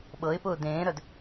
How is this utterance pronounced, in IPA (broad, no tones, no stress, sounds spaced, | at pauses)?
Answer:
ɓ ɤ ɪ̯ p ʊː d ẽː ɾ œ d